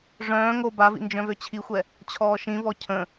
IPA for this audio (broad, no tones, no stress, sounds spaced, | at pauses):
ʐ œ̃ː ŋ o b a v ḭ n d͡ʒ œ̃ v ø t͡ɕʰ i xʷ ɛ | t͡ɕʰ ɔː ʃ ĩ v ɔ cʰ ə̃